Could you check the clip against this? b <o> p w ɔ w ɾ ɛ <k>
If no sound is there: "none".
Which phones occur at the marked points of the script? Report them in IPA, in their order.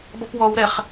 ɔ, χ

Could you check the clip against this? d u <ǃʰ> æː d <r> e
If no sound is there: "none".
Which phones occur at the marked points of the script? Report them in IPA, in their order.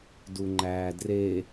ŋ͡ǃ, r

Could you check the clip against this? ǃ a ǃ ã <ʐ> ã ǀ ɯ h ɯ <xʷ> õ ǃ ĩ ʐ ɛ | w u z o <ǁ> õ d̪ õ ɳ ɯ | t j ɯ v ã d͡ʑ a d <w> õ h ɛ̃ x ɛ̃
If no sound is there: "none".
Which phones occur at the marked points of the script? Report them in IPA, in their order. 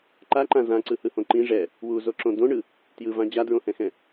z, h, ǁ, ɹ

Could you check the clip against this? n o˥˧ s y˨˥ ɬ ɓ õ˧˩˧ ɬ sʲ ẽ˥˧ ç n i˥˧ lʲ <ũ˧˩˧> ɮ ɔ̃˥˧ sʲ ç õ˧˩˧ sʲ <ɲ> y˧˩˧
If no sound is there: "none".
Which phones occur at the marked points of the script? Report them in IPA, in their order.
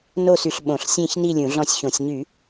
ũ˧˩˧, ɲ

